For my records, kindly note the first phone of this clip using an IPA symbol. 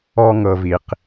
ɔ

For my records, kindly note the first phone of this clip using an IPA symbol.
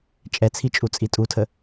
t͡ʃʼ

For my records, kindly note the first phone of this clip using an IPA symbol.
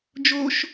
d͡ʒ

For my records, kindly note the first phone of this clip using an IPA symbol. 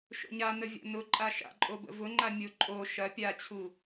ʃ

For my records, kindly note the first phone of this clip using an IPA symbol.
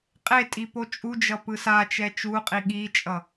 qʼ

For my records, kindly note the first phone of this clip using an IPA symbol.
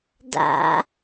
d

